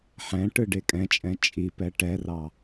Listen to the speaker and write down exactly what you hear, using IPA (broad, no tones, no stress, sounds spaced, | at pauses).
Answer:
ħ ɛ̃ ʈ ɯ ɖ e kʼ ɛ̃ t͡ʃʼ ɛ̃ t͡ʃʼ i p ɛ ʈ ɛ r ɑ